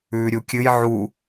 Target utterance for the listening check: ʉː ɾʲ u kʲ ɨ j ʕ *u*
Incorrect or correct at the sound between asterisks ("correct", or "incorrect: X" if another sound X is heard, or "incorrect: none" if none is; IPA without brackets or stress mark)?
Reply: correct